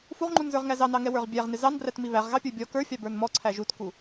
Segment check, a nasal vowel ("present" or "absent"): absent